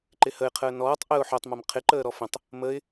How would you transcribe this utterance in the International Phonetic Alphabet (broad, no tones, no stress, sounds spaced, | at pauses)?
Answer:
ǃ ɪ h ə ɪ̯ qʰ əː n ɔː tˤ ʔ ə ʊ̯ ħ o tˤ m a m qʰ ɪ ǃ əː ɾ ɔ f ə̃ tˤ | m ə ɪ̯